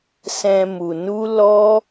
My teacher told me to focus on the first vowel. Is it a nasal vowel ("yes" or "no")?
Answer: yes